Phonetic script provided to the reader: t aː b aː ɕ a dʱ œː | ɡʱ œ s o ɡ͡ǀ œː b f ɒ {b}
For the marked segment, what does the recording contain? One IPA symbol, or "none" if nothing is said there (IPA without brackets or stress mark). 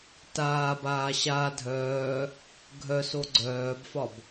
b